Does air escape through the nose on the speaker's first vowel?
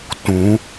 yes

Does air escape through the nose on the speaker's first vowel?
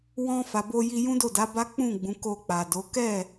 yes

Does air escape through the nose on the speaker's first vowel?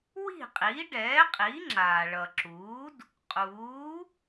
no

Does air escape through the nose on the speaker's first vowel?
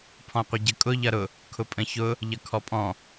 yes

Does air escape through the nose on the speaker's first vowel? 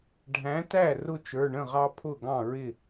yes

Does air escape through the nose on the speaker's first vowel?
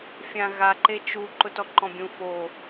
yes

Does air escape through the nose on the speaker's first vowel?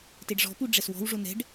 no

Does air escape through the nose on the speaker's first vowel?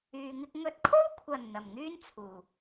no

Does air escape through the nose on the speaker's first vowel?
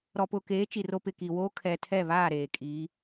no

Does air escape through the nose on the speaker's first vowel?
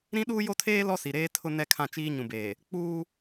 yes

